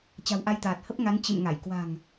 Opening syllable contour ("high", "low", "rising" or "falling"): low